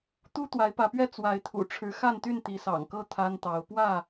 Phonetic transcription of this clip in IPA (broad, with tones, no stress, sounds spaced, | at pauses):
t̪ u˦ t̪ w a˨˦ ɪ̯ p ä˨˦ p ɥ ɛ˦ t͡s w a˨˦ ɪ̯ t̪ʰ ṵ˨˩ ʈ͡ʂʰ ɻ̩˨˦ x a˥˨ n t̪ y˥˨ n t̪ i˨˦ s ɑ̰˨˩ ŋ k ɤ˥˨ t̪ʰ a˦ n t̪ ɑ˨˦ ʊ̯ p w ä˥˨